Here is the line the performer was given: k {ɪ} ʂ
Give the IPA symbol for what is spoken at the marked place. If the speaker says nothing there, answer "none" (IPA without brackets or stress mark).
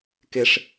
ɪ